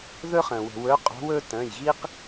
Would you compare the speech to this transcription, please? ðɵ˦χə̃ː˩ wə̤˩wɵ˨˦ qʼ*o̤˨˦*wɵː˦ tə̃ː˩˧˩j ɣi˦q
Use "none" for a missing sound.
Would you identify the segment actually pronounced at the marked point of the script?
o̤˨˦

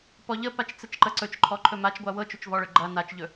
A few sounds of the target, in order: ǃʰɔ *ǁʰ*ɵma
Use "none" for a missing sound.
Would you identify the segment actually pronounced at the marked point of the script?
ǃʰ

